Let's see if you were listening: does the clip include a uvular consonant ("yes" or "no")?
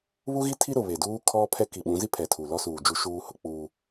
no